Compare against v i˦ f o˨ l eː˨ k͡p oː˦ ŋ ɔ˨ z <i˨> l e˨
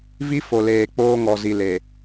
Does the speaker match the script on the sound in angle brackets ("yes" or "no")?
yes